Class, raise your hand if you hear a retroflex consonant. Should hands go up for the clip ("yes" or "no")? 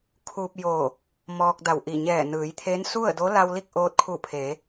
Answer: no